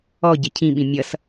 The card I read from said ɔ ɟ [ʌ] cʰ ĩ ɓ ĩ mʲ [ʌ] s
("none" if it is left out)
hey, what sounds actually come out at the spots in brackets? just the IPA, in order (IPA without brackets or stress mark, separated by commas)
ə, ʌ